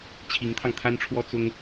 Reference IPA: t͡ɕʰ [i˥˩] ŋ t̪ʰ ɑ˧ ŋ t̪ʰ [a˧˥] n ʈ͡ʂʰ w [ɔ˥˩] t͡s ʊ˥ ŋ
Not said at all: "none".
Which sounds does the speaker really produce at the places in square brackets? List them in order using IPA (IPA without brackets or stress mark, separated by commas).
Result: i˧˥, a˥, ɔ˥